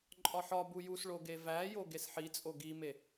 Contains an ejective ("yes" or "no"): yes